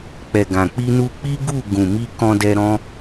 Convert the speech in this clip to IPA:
k͡p ɛ˨ ɡ ã˨ k͡p i˧ n u˧ k͡p i˦ ɡ u˦˨ ɡ ũ˨ m i˧ k ɔ̃˧ d ɛ˧ ɾ ɔ̃˦

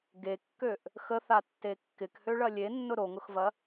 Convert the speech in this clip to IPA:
ɡ e kː ø ʔ | x ə θ a tː e kː ɪ k h ø ɭ ɐ lʲ e nː ʊ ɾ o ŋ ʊ x v ɐ

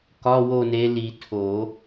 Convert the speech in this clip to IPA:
k ɒ˧˥˧ w o˦˨ n e˨˦ l i˨˩˦ tʰ o˨˩˦

